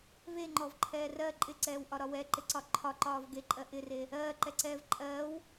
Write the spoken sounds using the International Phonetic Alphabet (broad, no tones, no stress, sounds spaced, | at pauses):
v e ŋ͡ǃ ɔ v ǃʰ ɛː r ɜ ǃʼ ɪ ǀ ɛː w ʔ ɒ ɾ ɒ w ɛ ǃ ɪ ǀ ɒ ǃʰ ɒ ǃ ɒː v ɡ e ǃʼ ɜ ʔ ɪ r e | ɜː ǃ ɛ ǀ ɛː v ǃʼ ɜː w